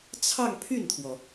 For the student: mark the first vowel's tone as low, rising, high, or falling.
falling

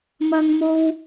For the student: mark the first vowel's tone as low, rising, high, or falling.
high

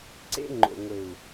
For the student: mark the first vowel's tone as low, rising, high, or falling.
high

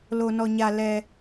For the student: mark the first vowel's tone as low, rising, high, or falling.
low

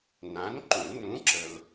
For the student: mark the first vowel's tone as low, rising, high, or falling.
rising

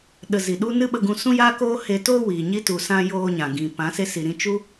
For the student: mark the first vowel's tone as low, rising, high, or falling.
low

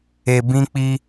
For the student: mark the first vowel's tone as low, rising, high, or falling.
low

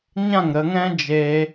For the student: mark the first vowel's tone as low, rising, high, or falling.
falling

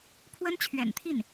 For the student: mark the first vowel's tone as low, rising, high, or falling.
high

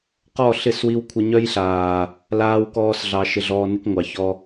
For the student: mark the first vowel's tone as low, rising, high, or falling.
falling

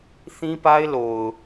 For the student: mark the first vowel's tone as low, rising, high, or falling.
high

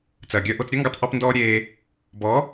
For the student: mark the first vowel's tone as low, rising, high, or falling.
low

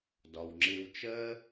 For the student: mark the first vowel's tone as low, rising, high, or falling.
low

